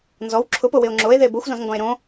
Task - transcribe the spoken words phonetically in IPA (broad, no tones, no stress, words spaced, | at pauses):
nzɔw ǁʰʊpowɪo̯ ŋ͡ǁoe̯ðe boxʷzɔ̃zŋɡɔ̃e̯ ɾõ